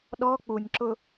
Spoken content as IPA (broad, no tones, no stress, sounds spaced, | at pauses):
ɗ ɔ k͡p u nʲ ǁ ʊ